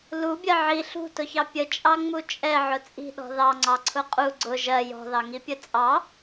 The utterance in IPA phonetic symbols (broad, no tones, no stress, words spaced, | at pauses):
lubʲɜ ʕi ɬṳtʊçɑ pʲət͡ʃʼɑŋ͡mu t͡ʃʼɛʕʊ t͡sʼi̤ɗɔ̤ ðɑŋ͡ǀɑǀʰʊ qʼu ɡ͡ǀʊ ʒɜ jɔ̤ðɑŋipʲə t͡sʼɑ